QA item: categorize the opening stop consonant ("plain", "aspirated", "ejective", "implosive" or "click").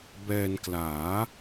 plain